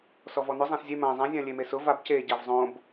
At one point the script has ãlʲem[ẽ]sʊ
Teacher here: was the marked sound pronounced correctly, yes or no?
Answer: no